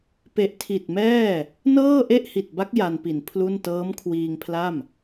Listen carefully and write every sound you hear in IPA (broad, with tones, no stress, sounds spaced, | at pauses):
p e˨˩ ʔ tʰ i˨˩ t̚ m ɛː˥˩ | n ɤː˥˩ ʔ e˥˩ ʔ h i˨˩ t̚ b a˦˥ k̚ j a˧ n p i˨˩ n pʰ l u˥˩ n t ɤː˦˥ m kʰ w iː˧ ŋ pʰ l a˥˩ m